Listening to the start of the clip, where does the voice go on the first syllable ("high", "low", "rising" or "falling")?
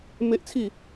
high